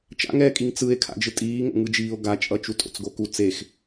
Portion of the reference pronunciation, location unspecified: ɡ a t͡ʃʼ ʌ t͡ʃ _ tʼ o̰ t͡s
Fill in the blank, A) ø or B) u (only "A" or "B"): B